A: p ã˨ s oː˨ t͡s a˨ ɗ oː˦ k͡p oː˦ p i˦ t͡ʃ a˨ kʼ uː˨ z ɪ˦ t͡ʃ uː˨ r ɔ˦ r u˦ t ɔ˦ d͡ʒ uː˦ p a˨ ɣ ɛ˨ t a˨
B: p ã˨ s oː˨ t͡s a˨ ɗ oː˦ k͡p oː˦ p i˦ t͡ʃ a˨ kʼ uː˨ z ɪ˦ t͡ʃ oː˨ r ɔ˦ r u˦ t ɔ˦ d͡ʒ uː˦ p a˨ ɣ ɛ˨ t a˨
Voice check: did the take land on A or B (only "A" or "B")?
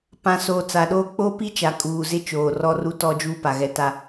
B